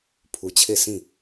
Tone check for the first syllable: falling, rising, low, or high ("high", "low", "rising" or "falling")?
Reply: low